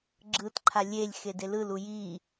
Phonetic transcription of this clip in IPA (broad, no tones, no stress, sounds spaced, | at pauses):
ɡ͡ǁ ɯ t ǃʰ a lʲ e lʲ x e d e l ɯ l u j i